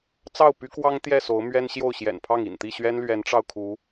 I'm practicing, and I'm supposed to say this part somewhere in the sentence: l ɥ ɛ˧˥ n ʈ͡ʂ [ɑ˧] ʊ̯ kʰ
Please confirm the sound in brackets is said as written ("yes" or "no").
yes